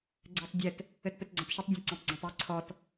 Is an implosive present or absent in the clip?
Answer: absent